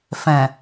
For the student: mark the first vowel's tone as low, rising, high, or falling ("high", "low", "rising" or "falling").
low